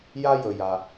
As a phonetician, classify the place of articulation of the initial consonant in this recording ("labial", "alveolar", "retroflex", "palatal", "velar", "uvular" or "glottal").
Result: palatal